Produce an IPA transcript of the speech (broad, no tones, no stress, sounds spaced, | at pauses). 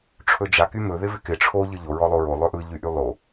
ʈ͡ʂʰ ɵ d͡ʒ a k y m ɵ ð ɪ v ɪ k ɪ ʈ͡ʂʰ o ʎ ɯ ʎ o ɹ ɔ lˠ o ɹ o lˠ ɵ ʔ ɯ ʎ y ʔ y lˠ o